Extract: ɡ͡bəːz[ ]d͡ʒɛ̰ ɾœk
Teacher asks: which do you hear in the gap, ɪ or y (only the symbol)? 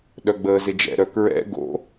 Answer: ɪ